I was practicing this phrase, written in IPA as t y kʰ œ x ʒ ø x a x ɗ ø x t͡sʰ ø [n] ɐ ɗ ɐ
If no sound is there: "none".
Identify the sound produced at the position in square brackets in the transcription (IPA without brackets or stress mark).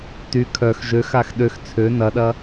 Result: n